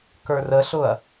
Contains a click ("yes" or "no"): no